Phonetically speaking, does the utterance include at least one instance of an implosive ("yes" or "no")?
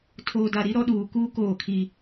yes